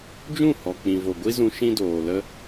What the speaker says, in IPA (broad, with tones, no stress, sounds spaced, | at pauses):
d͡ʒ ũ˦˨ h ɔ˨ k͡p ĩ˨ v o˨ ɡʷ i˦ z ũ˧ ʃ ĩ˦ d oː˨ l ə˧